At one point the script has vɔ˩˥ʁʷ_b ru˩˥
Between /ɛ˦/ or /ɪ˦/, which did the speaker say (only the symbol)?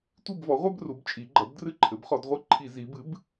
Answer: ɛ˦